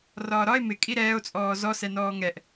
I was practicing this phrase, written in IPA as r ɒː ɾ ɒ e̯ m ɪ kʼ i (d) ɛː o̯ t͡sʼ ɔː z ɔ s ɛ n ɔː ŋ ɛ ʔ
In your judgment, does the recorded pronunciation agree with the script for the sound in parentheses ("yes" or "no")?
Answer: no